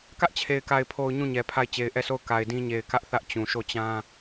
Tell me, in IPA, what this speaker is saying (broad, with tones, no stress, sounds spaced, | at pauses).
k ä˦ ʔ t͡ɕʰ e˨ ɪ̯ k a˨ ɪ̯ pʰ o˨ ʊ̯ ɲ ũ˦˨ ɲ ɛ˨ pʰ a˦˨ ɪ̯ t͡ɕ e˨ ɪ̯ ʔ ɛ˦˨ sʰ o˦˨ ʊ̯ k a˨ ɪ̯ d ĩ˦ ɲ e˨ ɪ̯ k ä˦ ʔ θ ä˦ ʔ t͡ɕ ũ˨ ʃ o˦˨ t͡ɕ ã˦